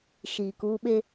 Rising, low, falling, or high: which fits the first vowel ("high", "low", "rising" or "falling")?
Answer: low